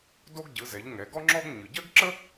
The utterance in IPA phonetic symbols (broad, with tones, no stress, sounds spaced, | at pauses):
d o˥ ɡ ɟ ɯ˩˧ z ɛ˩˧ ʎ ŋ ɛ˩˧ ɡ ɔ˥ ŋ͡ǁ ɔ˥ ɡ ɲ ɯ˩ ɟ ɜ˥ ɡ ǁ ə˥